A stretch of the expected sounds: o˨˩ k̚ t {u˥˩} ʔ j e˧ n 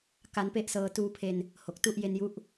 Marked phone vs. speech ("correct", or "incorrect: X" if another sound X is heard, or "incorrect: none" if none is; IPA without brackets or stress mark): correct